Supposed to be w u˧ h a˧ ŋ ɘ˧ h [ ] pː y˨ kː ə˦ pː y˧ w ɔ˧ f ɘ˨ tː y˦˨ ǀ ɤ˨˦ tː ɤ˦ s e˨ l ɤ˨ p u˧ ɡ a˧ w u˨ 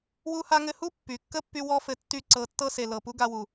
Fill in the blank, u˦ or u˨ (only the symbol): u˦